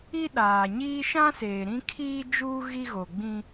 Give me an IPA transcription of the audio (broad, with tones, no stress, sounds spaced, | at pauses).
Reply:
i˦ ɗ aː˨ ɲ iː˦ ʃ ã˦ s eː˨ ɾ ĩ˦ kʰ iː˦ d͡ʒ uː˦ ɣ i˦ ɣ o˨ ɡ͡b ĩ˦